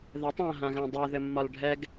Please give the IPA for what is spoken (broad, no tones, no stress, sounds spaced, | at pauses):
ð ɛ tˤ ã ɦ ã ɣ ã dˤ ø ð ɘ mː ɒ l ɖʱ ɛ ɡ